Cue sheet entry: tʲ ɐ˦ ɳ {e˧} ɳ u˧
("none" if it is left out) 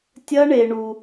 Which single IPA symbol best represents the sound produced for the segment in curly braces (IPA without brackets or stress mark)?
e˧